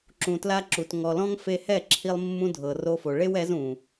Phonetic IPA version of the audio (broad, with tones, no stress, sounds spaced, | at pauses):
ǁ ũ˨ t l a˦ ǁ u˨ t ŋ ɔ˨ l ɔ̃˦ ŋ f e˧ h ɛ˦˨ ǁʰ i˧ lˠ mː ũ˦ dʱ ɤ˨ r o˦ f o˨ ɭ e˦ w ɛ˨˦ z ũ˨